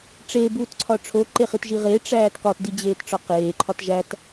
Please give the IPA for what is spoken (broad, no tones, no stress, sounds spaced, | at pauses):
ʈ͡ʂ e b uː t ǀʰ ɒ ʈ͡ʂʰ o ǃ e χ i t ʒ i ʁ e ʈ͡ʂ æː t k ɒ t d i d͡ʑ eː t ʈ͡ʂ ɒ q eː ǃʰ ɒ t ʒ æ t